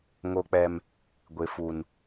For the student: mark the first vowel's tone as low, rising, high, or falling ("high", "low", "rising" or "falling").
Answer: high